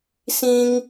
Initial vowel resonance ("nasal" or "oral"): nasal